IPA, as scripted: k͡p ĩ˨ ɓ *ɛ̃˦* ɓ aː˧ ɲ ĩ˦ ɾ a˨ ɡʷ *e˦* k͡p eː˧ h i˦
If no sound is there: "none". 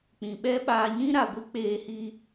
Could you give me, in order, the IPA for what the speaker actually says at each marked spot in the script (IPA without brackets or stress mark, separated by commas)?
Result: ɛ˦, i˦